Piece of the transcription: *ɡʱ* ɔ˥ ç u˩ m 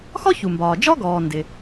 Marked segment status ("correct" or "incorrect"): incorrect